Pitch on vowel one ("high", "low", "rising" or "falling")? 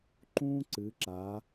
high